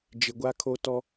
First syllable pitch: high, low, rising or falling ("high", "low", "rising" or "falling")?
low